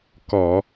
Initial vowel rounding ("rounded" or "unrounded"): rounded